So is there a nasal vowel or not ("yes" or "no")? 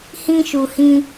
yes